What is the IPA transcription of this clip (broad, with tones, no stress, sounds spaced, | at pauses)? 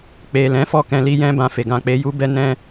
k͡p e˨ l ɛ̃˨˦ f ɔ˦˨ k ɛ̃˧ l i˦ j ɛ̃˦ b ã˧ f e˨ ɡ ã˨ k͡p e˨˦ j u˦ b ɛ˦ n ɛ̃˦